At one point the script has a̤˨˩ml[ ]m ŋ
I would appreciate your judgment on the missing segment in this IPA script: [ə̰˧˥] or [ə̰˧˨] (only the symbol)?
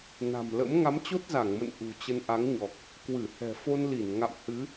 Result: ə̰˧˥